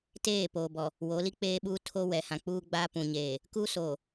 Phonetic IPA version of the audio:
teː˦˨ poː˨bɔ˨ | wo˨˦li˦k͡peː˦ɓuː˦ tʰo˦ wɛ˨hã˨k͡puː˦ ɡ͡ba˦pũ˨ɲeː˨ | ku˦soː˨

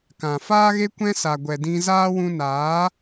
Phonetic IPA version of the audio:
kã˨faː˦ɣe˦ kʷɛ̃˦sa˨ ɡʷɛ˨dĩ˧zaː˦ wũ˧naː˨˦

